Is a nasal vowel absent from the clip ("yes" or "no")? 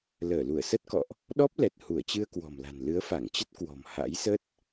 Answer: yes